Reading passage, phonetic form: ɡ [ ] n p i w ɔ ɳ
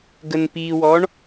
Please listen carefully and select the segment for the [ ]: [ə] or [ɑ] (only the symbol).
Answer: ə